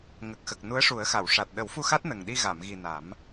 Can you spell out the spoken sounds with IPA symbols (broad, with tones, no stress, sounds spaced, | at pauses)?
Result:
ŋ ə˨˩ k̚ x ə˨˩ k̚ n u˧˥ ə̯ ʂ u˨˩˦ ə̯ x a˨˩˨ w ʂ a˨˩ t̚ ɗ ə˨˩˦ w f u˧ x a˦˥ t̚ n ə˨˩ ŋ ɗ i˧ ɣ a˨˩˨ m ɣ i˨˩ n a˨˩˦ m